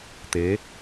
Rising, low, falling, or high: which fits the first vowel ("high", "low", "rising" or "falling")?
rising